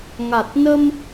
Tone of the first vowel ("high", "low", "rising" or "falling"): low